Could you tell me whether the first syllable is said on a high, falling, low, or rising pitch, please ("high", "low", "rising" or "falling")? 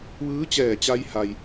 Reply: rising